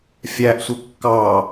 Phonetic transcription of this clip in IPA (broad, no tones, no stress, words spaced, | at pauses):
fʲæʔsʷə kːɑ